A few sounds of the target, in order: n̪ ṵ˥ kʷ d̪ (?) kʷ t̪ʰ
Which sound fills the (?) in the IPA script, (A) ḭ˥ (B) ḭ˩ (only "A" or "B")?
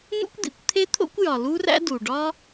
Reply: B